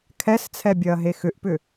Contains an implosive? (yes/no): no